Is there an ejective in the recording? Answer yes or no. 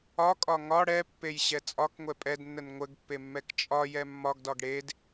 yes